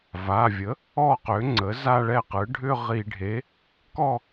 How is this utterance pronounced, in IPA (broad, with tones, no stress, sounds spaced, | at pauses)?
v a˩˧˩ vʲ ə˩˥ | ɔ˥˧ q ø˩˥ ŋ͡ǀ ə˩˥ z a˥˧ ɭ ɛ˥˩ q ɯ˩˥ ɖʱ ʏ˥˧ ʁ i˧˩˧ ɖʱ e˩˥ | k ɔ˥˧